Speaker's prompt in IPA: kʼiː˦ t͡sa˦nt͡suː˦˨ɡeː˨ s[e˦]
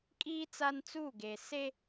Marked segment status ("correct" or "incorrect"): correct